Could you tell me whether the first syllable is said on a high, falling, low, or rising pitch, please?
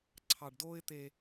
low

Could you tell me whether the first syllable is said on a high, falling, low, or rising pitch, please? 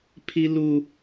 high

